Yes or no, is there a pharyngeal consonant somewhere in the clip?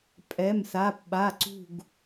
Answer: no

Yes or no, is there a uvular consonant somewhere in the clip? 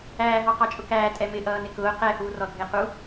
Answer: yes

